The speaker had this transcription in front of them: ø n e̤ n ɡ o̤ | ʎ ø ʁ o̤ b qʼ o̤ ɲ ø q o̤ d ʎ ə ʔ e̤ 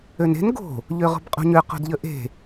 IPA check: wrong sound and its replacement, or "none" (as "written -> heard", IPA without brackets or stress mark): none